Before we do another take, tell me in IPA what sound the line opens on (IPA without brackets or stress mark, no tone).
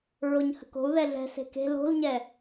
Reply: ɹ